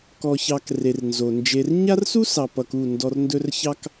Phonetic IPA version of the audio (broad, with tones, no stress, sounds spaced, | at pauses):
k ɔ˨ ç ɑ˨ k r e˨ r n z o˨ n d͡ʒ e˧ r ɲ a˦ r s u˦ s ɑ˨ p ʌ˨ k u˦˨ n d ɔ˧ r n d ɵ˦ r ç ɑ˦ k